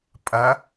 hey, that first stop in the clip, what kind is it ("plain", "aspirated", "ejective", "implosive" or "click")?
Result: ejective